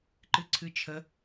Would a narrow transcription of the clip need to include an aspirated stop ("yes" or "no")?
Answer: yes